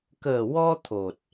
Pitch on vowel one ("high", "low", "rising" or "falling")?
low